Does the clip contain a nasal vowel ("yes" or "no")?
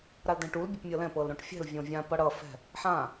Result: yes